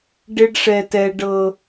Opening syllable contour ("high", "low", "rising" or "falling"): high